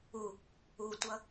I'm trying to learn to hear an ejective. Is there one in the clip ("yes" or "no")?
no